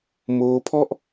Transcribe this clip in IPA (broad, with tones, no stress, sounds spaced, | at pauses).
m oː˦˥ pʰ ɔ˥˩ ʔ